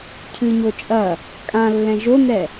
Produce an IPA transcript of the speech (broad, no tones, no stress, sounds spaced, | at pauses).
cʰ ɨ ɲ o t͡ʃʼ ɐ | kʼ ã lː ɛ̃ ʒ o n ɛ